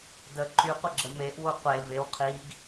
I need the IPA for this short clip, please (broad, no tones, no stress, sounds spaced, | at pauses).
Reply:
d ə ǃ y qʷ ə ɡ͡ǁ ə m e ʔ w o qʷ e v e w qʰ i ɡ